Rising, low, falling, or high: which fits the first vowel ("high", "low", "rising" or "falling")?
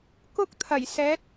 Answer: high